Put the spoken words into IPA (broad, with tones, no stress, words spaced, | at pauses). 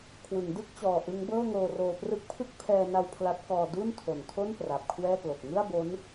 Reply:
kʰwɯ˩˦ŋdɯ˥˩k̚t͡ɕɔː˨˩ ʔɯ˦˥ŋbɤː˥˩ŋoː˧roː˧ prɯ˦˥k̚pʰɯ˥˩k̚ pʰɛː˧na˧w pʰla˦˥t̚kɔː˧ du˥˩ntʰo˨˩ntʰo˥˩n pra˨˩p̚kʰwɛː˥˩klo˨˩k̚ ŋɯ˥˩a̯bo˦˥n